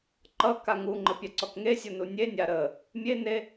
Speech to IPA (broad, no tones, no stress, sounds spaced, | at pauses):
ǃ ʌ k a ŋ u ŋ͡ǃ ə pʲ a ǀ ɔ k ŋ e sʲ o n u nʲ e nʲ a ɾ ə | mʲ e n e